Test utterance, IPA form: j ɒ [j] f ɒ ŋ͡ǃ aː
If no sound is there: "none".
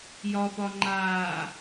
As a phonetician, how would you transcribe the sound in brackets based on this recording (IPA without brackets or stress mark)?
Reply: none